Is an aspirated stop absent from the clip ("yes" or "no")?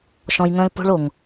yes